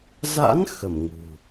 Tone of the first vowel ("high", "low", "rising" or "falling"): rising